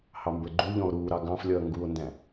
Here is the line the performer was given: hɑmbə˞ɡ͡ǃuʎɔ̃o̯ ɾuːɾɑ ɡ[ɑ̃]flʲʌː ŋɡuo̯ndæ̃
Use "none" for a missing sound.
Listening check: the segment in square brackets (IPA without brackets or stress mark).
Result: ɑ̃